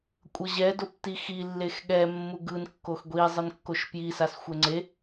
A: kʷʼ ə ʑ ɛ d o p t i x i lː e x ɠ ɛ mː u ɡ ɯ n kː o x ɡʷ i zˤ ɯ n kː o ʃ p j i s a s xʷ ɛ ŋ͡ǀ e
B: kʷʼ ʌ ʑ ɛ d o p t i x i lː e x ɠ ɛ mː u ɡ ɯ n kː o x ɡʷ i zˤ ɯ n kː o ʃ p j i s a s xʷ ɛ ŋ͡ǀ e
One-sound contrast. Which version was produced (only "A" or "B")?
B